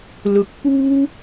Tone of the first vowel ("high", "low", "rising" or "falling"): rising